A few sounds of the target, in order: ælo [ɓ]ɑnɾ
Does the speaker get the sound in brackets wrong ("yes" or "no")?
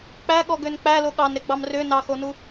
yes